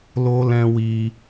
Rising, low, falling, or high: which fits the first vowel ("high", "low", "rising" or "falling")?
high